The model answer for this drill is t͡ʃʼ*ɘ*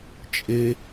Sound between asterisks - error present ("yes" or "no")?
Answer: yes